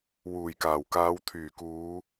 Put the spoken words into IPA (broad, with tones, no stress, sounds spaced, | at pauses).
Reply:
w uː˨˩ j k aː˨˩ w k aː˨˧ w t̪ʰ yː˨˩ k uː˨˧